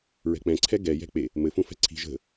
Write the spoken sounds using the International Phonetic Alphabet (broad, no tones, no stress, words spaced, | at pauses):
ɹɛ̤k͡pɛ̃ǀʰɛ ɡɛjɛ̤ k͡pe | mɘfũ fɛ̤ǀʰi̤ ʒə̤